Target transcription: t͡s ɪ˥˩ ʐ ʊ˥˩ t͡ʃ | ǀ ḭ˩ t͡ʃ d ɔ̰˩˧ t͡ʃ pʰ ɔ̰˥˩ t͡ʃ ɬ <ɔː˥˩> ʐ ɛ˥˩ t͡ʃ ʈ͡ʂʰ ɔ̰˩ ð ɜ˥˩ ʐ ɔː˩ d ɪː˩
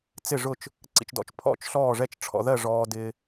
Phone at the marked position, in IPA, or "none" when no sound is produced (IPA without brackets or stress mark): ɔː˥˩